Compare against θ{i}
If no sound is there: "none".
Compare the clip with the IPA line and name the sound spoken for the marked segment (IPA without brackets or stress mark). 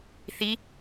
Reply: i